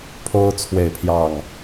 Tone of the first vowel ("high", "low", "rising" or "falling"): high